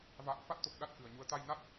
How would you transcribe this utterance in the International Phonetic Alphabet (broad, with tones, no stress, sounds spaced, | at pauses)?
v a̰ː˧˨ n f a˦˥ t̚ t̪ o˨˩ k̚ ɗ a˦˥ t̚ k ɨ˨˩ ə̯ ɲ u˨˦ ə̯ t̪ a˧ j n a˦˥ t̚